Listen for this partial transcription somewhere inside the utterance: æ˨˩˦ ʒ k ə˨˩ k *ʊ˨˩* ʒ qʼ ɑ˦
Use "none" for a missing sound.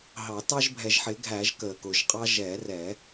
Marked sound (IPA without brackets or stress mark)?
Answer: ʊ˨˩